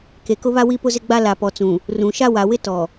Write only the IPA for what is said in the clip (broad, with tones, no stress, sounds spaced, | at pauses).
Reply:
k e˨ k ʊ˦ β a˦ w i˦ p ʊ˦ z ɪ˦ ɡ͡b a˦ l a˨ p ɔ˨ t͡s ũ˨ | r ũ˨ ʃ a˦ w a˨ w ɪ˦ t ɔ˨